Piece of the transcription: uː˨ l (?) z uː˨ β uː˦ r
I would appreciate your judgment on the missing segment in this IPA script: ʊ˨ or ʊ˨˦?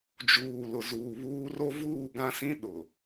ʊ˨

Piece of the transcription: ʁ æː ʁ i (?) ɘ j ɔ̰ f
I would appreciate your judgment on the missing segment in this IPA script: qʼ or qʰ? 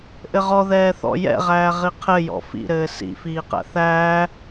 qʰ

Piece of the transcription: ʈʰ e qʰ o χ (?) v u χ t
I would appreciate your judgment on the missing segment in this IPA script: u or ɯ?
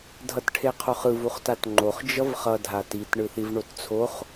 ɯ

